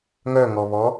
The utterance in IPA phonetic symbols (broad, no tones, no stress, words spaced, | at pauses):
ŋœŋɔβɔ